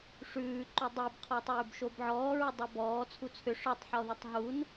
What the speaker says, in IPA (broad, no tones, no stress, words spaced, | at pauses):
ʂʉːǃu dˤibqʰɔtˤʉːb ʃobʕɔːɹʏdˤo bɔː t͡sʰut͡sʰʏ ʂɔtˤ ħɔðɨtˤɦun